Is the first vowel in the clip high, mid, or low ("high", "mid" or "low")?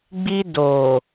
high